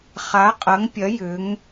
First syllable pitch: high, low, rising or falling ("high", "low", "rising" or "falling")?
rising